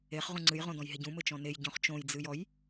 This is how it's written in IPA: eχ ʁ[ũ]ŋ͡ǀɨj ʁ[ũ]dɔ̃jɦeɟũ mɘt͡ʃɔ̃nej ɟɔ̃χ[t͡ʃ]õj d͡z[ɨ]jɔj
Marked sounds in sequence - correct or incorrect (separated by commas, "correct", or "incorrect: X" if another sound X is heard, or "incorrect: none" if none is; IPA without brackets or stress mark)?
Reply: correct, incorrect: õ, correct, correct